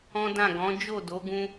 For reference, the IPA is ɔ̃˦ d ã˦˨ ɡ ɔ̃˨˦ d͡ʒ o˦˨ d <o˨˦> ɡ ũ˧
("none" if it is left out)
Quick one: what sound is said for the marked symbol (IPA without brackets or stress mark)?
o˨˦